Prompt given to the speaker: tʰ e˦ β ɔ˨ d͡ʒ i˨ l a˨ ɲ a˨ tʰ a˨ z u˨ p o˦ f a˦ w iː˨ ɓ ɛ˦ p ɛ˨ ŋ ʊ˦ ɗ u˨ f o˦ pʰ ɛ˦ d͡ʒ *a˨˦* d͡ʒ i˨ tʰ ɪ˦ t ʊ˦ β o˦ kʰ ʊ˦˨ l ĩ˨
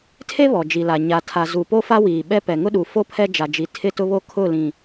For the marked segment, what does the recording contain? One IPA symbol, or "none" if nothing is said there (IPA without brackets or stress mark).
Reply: a˨